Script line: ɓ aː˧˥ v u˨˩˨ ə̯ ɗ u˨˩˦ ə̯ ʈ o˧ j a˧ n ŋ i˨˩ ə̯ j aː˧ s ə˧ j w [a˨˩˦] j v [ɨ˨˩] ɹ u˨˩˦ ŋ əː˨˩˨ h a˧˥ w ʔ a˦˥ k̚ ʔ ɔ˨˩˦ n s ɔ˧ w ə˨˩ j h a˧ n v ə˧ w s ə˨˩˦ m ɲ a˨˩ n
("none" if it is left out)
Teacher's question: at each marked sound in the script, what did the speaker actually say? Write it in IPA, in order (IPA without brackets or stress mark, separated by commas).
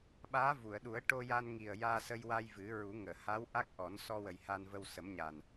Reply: a˧, ɨ˨˩˦